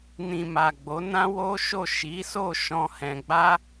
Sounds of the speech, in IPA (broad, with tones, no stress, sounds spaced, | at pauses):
n ĩ˨ m a˨ ɡ͡b o˨˦ n ã˦ w o˦ ʃ o˦˨ ʃ i˨˦ s o˦˨ ʃ ɔ̃˧ h ɛ̃˧ ɡ͡b a˦